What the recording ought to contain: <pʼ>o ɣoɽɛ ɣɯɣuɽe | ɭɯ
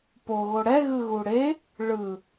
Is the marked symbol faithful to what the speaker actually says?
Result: no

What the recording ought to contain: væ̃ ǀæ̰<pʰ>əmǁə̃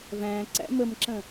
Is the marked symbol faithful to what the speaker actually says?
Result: no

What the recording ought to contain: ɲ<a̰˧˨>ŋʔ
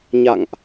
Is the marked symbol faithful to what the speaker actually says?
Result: yes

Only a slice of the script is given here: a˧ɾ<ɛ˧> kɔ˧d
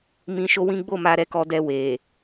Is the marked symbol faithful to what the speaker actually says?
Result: yes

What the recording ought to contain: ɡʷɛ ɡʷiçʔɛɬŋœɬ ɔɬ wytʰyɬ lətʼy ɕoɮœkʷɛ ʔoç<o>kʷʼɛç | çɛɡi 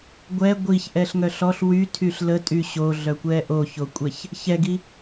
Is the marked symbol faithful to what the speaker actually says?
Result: yes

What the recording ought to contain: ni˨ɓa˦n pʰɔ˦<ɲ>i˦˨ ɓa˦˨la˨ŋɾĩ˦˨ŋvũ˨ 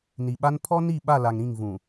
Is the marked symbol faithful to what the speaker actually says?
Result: no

